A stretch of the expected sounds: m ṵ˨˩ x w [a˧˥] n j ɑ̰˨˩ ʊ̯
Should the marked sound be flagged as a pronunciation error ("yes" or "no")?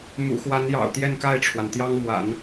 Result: no